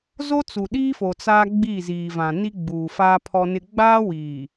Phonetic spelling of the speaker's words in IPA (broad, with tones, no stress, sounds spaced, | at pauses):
z o˦ t͡s u˨ ɗ iː˦ f o˨ t͡s aː˦ ɡ͡b i˦˨ z iː˨ v ã˨ n i˦ ɡ͡b uː˨ f a˦ pʰ ɔ˦ n ɪ˦ ɡ͡b aː˦ w iː˨